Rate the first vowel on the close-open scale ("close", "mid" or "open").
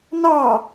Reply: open